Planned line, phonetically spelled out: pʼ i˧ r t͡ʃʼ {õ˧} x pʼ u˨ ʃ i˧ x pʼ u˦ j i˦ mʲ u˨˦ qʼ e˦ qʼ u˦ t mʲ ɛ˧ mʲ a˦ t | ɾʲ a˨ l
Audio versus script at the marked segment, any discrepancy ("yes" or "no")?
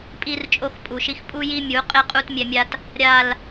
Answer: yes